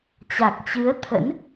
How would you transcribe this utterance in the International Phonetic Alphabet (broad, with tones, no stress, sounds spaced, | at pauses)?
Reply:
t͡ɕ a˨˩ k̚ t͡ɕ ɨ˨˦ ə̯ t̪ʰ ə̰˧˥ n